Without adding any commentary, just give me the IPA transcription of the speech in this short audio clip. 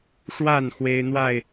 ʂ w a˥˨ n x w e˦ ɪ̯ n̪ w a˥˨ ɪ̯

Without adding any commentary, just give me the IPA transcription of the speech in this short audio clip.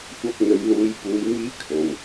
kʷ ɐ˧ p̚ n̪ ɵ˨˧ ɥ l uː˨˧ j p uː˨˧ j m iː˥ kʰ o˨ w

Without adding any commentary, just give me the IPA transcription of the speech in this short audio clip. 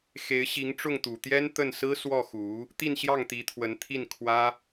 x e˧˥ ɪ̯ ɕ i˧˥ ŋ ʈ͡ʂ ʊ˥˩ ŋ t̪ u˨˩ t̪ j ɛ˥ n t̪ ə˥˩ n s ɹ̩˥ s w ɔ˥˩ x u˧˥ | t̪ i˥˧ n ɕ j ɑ˥˩ ŋ t̪ i˧˥ t̪ʰ w ə˧˥ n t̪ʰ i˥˩ n kʰ w ä˥

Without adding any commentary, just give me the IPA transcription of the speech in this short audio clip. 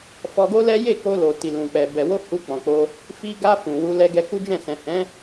f ɔ˧ ɡ o˦ l ɛ˦ j e˦˨ k o˧ l o˨ t i˨ l ũ˨ k͡p ɛ˨ b ɛ˨ w o˧ h u˧ k͡p ɔ̃˨ k͡p o˧ | f i˧ ɡ a˧ f ũ˨ w u˧ l ɛ˧ ɡ ɛ˧ k u˦ d͡ʒ ɛ̃˦˨ s ɛ̃˨ h ɛ̃˨˦

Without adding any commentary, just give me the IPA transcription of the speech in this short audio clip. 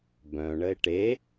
b œ̃ ɳ ə e̯ ʈ e

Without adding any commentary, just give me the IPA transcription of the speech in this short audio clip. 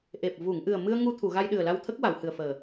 ʔ e˨˩ p̚ v u˨˩˨ ŋ ʔ ɨ˨˩ ə̯ m ɨ˧ ə̯ ŋ u˧ t̪ʰ u˨˩˨ ɣ a˧ j ɗ ɨ˨˩ ə̯ l a˧ w t̪ʰ ə˦˥ k̚ w a˨˩˨ w h ɨ˨˩ ə̯ f əː˨˩

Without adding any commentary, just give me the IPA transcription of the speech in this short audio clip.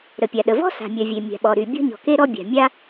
ɾ ə˩ pʲ a˩ ɗ ə˩ v ɔ̤˥ s a̤˩ mʲ œ˩ vʲ e˩ mʲ a̤˩ ɓ ɔ˩ ɾ y˩ bʲ ɔ̤˥ ɲ ɔ̤˩ k e˥ ɾ ɔ˥ bʲ a̤˩ mʲ a˥

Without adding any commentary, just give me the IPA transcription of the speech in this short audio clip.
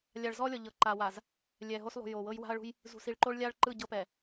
lʲ a˨ ɭ z ɔ˦ lʲ ɔ˨ ʎ ɤ˨ ǃ a˨ w a˨ z | lʲ ɛ˨ ɦ o˦ s lˠ ṳ˨ j o˨ w ɤ˦ j w a̤˦ ɐ̯ ɭ ṳ˦ j | z ṳ˨ s i˨ ɭ ǃ o˦ ɭ lʲ a˦ ɭ ǃ ɯ˦˨ ɟ ɤ˦ p ɛ˨

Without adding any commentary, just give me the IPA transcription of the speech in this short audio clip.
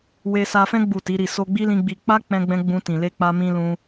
w e˧ s a˧ f ɛ̃˦ ɡ͡b u˦˨ t i˨˦ ɾ i˦˨ s o˧ ɡ͡b i˦ l ĩ˧ ɡ͡b i˧ k͡p a˦ k͡p ɛ̃˧ ɡ͡b ɛ̃˧ ɡ͡b ũ˧ t ĩ˨ l e˧ k͡p a˧ m ĩ˧ l ũ˧

